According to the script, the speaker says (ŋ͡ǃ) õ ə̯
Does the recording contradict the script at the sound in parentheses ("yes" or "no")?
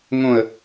yes